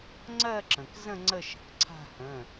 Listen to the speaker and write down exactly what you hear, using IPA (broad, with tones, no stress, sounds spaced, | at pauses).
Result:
ŋ͡ǀ ɜ˥˧ ǁ ə̃˩ k z ə̃˥˧ ŋ͡ǀ ə˥˧ ʃ ə̤˩ k ǀʰ a̤˥˧ h ə̃˩˧˩